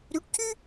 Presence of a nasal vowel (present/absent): absent